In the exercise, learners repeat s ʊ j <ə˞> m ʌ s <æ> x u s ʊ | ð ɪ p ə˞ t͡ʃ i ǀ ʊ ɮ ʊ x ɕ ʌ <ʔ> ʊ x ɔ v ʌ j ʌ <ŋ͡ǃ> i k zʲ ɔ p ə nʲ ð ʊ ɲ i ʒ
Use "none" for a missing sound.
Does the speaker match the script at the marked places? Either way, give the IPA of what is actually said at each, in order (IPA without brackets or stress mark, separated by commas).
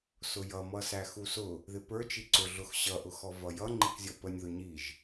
ʌ, æ, ʔ, ŋ͡ǃ